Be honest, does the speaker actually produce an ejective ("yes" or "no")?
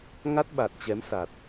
no